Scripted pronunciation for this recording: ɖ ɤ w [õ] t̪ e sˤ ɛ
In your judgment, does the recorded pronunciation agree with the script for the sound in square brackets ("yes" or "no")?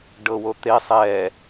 no